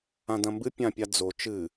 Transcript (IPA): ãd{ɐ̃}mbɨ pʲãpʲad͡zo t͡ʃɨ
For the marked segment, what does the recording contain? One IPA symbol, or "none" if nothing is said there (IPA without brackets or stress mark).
ɐ̃